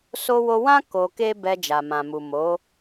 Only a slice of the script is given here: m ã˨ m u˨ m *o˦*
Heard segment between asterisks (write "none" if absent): o˨˦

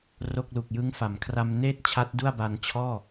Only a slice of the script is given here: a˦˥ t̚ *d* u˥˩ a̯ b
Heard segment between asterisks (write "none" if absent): d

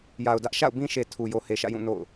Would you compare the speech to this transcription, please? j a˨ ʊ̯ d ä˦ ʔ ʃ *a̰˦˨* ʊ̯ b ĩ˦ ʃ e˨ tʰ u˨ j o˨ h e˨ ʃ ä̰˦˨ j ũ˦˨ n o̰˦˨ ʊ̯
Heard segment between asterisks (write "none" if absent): a̰˦˨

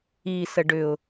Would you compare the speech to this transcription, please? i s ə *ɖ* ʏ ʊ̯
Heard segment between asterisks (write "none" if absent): ɖ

